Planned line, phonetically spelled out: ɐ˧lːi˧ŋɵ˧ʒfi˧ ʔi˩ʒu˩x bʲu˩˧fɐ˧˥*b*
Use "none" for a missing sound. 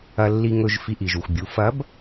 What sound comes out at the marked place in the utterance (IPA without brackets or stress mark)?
b